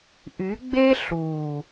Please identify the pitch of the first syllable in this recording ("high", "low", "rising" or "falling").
rising